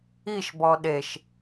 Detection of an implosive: present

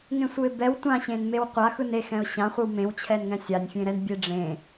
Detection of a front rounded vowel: absent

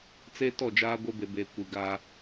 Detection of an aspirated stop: absent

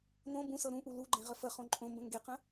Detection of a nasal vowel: present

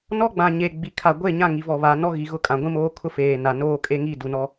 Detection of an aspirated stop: present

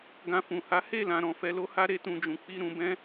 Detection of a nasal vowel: present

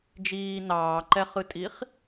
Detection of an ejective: present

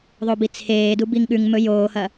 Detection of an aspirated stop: present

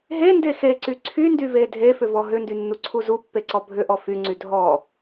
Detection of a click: present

